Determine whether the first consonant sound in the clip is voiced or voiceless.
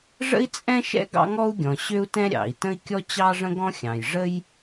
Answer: voiced